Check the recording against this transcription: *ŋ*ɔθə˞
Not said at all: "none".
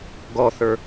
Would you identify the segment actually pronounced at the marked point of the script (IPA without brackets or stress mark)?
ɡ